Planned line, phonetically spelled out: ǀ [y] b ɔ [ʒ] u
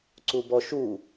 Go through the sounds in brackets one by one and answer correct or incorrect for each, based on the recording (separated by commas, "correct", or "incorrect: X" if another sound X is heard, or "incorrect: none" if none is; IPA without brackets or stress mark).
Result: incorrect: u, incorrect: ʃ